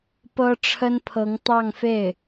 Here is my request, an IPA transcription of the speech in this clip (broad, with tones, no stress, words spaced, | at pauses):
pɤ˥ʈ͡ʂʰə˥npʰɤ˧˥ŋ t̪ɑ˥˧ŋfe˥˩ɪ̯